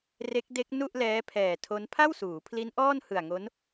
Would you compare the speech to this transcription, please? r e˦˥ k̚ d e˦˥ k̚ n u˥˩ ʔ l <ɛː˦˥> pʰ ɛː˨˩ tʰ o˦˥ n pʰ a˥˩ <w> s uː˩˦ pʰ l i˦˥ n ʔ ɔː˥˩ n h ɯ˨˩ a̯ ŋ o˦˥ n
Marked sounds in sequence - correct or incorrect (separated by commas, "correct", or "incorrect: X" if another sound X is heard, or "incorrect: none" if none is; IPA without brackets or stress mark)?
correct, correct